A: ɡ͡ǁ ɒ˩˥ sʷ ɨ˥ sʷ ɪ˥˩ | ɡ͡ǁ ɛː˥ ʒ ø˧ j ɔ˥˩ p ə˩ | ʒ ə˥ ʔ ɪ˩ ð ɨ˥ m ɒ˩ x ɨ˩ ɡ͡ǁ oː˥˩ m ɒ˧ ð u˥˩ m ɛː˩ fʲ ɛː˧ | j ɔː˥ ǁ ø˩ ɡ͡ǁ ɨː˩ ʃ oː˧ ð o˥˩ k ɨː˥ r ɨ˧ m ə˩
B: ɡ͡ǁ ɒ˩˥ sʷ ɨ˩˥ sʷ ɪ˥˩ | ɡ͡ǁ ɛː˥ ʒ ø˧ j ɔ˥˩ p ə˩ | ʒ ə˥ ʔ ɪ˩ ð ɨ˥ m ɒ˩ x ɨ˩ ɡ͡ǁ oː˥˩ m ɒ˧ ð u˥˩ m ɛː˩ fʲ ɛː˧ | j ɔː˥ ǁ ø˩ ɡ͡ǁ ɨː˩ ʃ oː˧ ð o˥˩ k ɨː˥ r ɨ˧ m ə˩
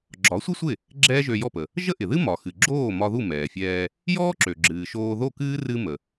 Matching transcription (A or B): A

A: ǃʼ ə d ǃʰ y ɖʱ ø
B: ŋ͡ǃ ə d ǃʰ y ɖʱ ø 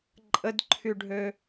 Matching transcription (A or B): A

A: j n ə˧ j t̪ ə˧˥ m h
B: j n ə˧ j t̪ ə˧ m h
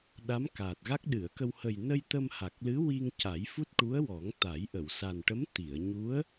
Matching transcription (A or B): B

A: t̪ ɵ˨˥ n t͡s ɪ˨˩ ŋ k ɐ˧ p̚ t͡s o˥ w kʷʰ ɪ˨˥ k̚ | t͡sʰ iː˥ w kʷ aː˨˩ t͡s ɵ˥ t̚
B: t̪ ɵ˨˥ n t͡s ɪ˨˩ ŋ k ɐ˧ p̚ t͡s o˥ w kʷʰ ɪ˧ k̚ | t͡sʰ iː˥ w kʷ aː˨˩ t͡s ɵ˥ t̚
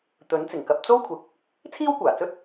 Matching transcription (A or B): A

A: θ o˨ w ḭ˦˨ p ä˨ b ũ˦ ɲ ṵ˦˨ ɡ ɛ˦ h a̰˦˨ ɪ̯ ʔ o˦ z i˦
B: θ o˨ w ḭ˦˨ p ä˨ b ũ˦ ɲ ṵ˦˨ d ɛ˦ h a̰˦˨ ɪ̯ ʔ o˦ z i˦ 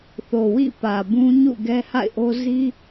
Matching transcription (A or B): A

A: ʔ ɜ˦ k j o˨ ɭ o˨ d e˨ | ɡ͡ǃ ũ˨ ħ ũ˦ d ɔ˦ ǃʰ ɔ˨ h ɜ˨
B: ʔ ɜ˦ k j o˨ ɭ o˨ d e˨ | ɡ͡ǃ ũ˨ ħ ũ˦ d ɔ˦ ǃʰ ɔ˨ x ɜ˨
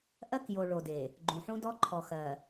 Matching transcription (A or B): B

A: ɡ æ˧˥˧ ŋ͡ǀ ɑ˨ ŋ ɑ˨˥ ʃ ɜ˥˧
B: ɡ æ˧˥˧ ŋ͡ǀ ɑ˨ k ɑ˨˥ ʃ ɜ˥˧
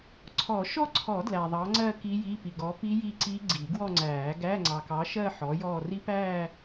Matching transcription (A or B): B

